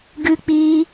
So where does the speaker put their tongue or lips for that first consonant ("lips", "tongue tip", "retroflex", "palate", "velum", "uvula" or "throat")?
velum